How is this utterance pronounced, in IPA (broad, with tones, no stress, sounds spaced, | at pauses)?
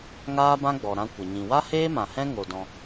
ŋ aː˦ b ã˦ ɡ͡b ɔ˨ ɾ ã˧ kʷ ə˨ ɲ ĩ˨ w a˦ h eː˦ m ã˨ h ɛ̃˦ ŋ o˧ d ɔ̃˧